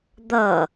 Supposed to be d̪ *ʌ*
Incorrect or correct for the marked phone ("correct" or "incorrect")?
correct